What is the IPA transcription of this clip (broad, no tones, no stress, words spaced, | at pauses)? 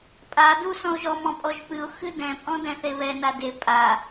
pʼa du sɔ̃ʊ̯ʒɔ mɔ̃pʼɔʒpɨʊ̯ xɨdɛ̃ pʼɔ̃dɛ̃θeβɛ nade pʼa